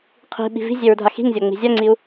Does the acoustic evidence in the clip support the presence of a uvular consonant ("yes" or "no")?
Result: yes